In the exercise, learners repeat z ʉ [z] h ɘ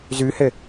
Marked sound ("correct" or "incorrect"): incorrect